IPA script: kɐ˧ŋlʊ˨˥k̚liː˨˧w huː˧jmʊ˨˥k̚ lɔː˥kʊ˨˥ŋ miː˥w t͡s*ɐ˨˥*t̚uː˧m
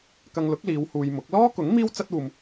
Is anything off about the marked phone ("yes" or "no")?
yes